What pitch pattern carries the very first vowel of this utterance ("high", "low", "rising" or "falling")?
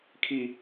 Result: high